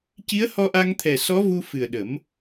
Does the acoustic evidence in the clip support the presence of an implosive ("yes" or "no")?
yes